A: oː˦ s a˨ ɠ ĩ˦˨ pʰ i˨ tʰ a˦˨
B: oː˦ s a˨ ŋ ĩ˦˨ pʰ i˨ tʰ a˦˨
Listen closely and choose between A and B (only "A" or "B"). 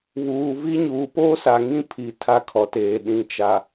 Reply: B